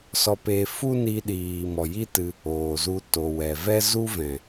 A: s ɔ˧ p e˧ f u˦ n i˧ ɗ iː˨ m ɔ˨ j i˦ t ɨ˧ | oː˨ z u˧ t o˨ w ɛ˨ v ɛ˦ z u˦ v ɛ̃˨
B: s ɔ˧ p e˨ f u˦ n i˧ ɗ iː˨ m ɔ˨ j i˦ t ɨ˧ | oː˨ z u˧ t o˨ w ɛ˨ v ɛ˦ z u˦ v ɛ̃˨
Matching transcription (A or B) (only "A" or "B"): A